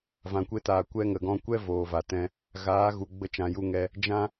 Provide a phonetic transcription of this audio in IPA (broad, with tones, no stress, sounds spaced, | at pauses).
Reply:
v ã˨ kʷ e˧ t aː˨ kʷ ɛ˧ ŋ ə˨ ɡ ɔ̃˧ kʷ ɛ˦ v oː˨ v a˨ t ɛ̃˧ | ɣ aː˨˦ ɣ u˨ ɡ͡b ə˧ t͡ʃ ã˨ j u˧ ŋ ɛ˧ | d͡ʒ ã˦